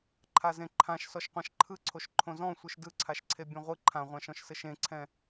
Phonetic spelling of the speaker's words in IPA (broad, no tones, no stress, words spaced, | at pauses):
ǃʰazẽǃʰãʃsɔʃ qʷãʃǃʰɯǀʰoʃ ǃʰõzɔ̃ sʷɯʃdɯǀʰaʃǀʰe bʲãʁʷɯ ǃʰãʁʷãʃɔ̃ʃ sɘʃẽǀʰɛ̃